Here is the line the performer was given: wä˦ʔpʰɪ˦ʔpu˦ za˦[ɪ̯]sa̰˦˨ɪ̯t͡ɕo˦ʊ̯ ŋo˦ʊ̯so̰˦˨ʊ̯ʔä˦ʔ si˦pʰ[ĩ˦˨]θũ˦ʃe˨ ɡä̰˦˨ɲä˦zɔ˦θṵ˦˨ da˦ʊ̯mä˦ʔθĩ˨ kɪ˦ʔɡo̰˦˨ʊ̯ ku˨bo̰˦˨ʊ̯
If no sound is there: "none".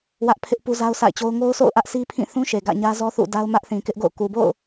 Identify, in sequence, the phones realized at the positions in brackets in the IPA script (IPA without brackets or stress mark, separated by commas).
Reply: ʊ̯, ĩ˦˨